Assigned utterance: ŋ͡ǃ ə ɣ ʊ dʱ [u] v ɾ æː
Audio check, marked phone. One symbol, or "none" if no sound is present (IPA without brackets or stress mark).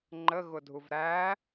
u